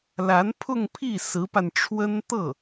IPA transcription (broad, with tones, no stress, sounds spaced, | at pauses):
l a˧˥ n pʰ ʊ˥˧ ŋ pʰ i˥˩ s ɹ̩˧˥ p a˧ n ʈ͡ʂʰ w ə˥ n t̪ ɤ˥˩